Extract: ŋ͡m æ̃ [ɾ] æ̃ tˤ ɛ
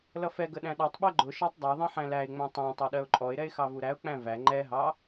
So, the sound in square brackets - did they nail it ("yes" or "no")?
no